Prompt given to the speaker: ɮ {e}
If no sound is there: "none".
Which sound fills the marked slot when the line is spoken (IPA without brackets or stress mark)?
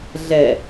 ɛ